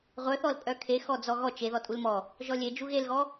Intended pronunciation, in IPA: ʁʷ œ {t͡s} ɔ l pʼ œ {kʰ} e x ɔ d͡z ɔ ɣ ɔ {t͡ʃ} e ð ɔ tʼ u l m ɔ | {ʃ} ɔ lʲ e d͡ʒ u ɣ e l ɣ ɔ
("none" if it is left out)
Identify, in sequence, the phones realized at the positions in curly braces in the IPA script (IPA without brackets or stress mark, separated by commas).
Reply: θ, kʰ, t͡ʃ, ʒ